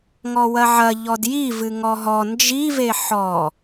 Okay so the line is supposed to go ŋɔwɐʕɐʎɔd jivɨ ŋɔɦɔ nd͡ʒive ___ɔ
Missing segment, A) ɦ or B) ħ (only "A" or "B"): B